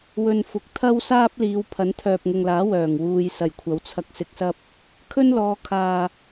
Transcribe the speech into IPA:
w ɵ˨ n f ʊ˨˥ k̚ t̪ʰ ɐ˥ w s aː˥ p̚ l iː˨˧ w pʰ ɐ˨˥ n t̪ʰ œː˨ p̚ ŋ ʊ˨ ŋ l aː˨˥ w œː˨˩ ŋ w uː˧ j s ɐ˨˩ j kʷʰ ɐ˨˥ w t͡sʰ ɐ˧ k̚ s ɪ˧ k̚ s ɐ˥ p̚ | kʰ ɵ˥ n l ɔː˨˧ kʰ aː˨

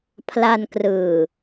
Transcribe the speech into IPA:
pʰ l a˧ n k r ɯː˨˩

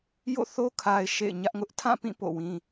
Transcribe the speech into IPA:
j o̰˦˨ θ o˦ kʰ a˨ ɪ̯ ʃ ḛ˦˨ ɪ̯ ɲ ä˦ ʔ ŋ ʊ˦ ʔ tʰ ã˦˨ p ĩ˦˨ p o̰˦˨ w ĩ˦

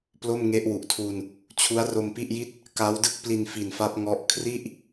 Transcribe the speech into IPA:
p l o˥˩ m ŋ e˦˥ ʔ w u˨˩ ʔ tʰ uː˧ n | t͡ɕʰ u˦˥ a̯ r o˧ m p i˥˩ ʔ j i˥˩ t̚ | k a˦˥ w d ɯ˥˩ k̚ p l i˧ n f i˨˩ n f a˦˥ p̚ ŋ ɔ˦˥ ʔ kʰ r i˥˩ ʔ

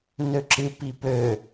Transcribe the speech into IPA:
n ø ǁ ɨ p i p ø

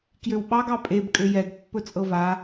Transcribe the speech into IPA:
k j ø w ɓ ɑ ɡ ɑ pʼ e b kʼ ø j ɛ ɡ pː ɵ t͡sʼ ɤ v a

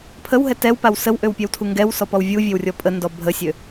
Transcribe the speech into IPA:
pʰ ə w ɦ ɛ t ɛ w p a w s ə w ʔ ø w pʲ ɛ w tʰ u ŋ ɡ ɛ w s ɔ p ɔ w vʲ u vʲ e w rʲ ɔ pʼ ə n d ɔ bʱ ə sʲ ø

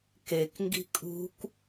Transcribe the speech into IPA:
k e k ŋ ɡ i̤ kʼ ṳ k

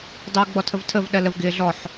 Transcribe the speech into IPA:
dˤ ɜ w ɡ͡b ɔ tʰ ə v tʰ ə v ɗ ɜ l ə v ɡ ɪː ɮ ɔ ħ

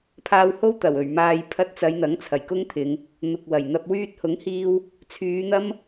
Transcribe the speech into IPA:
pʰ aː˧ w h o˥ w t̪ ɐ˨˩ w ɵ˨˩ ɥ m aː˨ j pʰ ɐ˧ t̚ t͡s ɐ˨˧ j n̪ ɐ˨˥ ŋ t͡sʰ ɐ˨˩ j k ʊ˥ ŋ t̪ʰ ɪ˨˧ ŋ | n̪ ʊ˨ k̚ w ɐ˨˩ j n̪ ɐ˧ p̚ w yː˧ t̚ h ʊ˨˥ ŋ h iː˧ w | t͡sʰ yː˨˧ n̪ ɐ˥ m

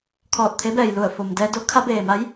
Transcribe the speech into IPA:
kʰ ɔː˧˩ t̚ t̪ʰ e˧˥ b ɛː˩ j l u˧˩ ə̯ f o˩ m d ɛː˧ d o˧˥ kʰ a˧˥ b eː˩ m a˧˥ j

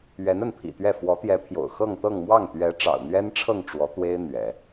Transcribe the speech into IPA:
ɥ ɛ˧˥ n ə˥˩ n pʰ ḭ˨˩ t̪ ɥ ɛ˥˩ f w ɔ˧˥ t̪ j ɛ˧˥ pʰ j o̰˨˩ ʊ̯ x ɤ˥˧ ŋ t̪ ɤ˥˧ ŋ m w ɑ˥˩ ŋ t̪ ɥ ɛ˧˥ ʈ͡ʂ ɑ̰˨˩ ʊ̯ n̪ ɥ ɛ˥ n ʈ͡ʂʰ ɤ˥˩ ŋ ʈ͡ʂ w ɔ˧˥ t̪ w e˥ ɪ̯ n̪ ɥ ɛ̰˨˩˦

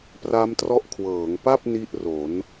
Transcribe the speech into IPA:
p r a˦˥ m t r ɔ˦˥ ʔ kʰ w ɤː˩˦ ŋ p a˥˩ p̚ n i˥˩ ʔ r o˩˦ n

